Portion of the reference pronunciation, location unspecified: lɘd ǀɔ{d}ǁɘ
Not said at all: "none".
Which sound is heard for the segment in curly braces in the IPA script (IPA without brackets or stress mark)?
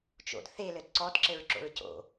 d